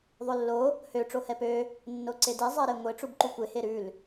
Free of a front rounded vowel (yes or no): no